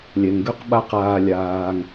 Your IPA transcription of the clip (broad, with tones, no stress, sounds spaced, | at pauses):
lʲ ɛ˩ ŋ ɡ ø˧ q ɓ a˧ q aː˧ lʲ aː˧ ŋ